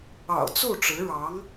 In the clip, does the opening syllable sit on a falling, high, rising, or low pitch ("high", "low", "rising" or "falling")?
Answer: low